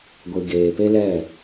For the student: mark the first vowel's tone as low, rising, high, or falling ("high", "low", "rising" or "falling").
low